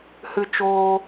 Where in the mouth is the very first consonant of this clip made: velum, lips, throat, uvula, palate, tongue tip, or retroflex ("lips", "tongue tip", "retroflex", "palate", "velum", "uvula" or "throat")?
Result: throat